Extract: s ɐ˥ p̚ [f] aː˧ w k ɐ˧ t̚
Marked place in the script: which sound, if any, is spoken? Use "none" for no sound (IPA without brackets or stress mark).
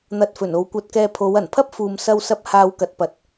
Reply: h